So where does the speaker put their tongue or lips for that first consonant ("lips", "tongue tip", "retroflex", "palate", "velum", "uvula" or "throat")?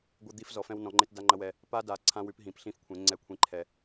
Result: velum